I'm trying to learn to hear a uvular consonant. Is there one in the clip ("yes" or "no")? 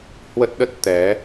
no